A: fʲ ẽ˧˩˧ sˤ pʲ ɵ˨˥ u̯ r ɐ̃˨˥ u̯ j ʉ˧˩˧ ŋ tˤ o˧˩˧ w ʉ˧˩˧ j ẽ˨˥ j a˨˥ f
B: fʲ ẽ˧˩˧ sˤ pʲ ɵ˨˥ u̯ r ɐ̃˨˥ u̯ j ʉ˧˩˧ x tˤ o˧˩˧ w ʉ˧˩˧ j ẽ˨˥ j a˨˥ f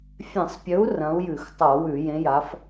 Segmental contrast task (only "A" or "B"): B